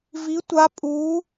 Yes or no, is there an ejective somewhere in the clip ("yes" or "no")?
yes